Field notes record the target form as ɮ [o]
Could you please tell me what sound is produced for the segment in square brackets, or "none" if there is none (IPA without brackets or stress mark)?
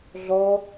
ɔ